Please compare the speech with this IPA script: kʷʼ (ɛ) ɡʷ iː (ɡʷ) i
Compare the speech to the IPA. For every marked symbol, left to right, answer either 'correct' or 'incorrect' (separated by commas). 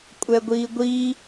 correct, correct